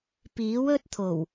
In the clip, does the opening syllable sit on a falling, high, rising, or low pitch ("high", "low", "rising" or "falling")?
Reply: rising